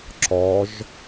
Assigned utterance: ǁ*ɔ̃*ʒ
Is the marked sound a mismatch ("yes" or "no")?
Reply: yes